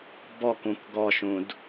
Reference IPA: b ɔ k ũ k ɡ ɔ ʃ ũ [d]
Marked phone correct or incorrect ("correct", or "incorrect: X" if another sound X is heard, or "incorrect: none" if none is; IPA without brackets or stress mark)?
correct